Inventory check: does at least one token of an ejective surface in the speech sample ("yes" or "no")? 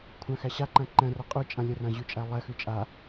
yes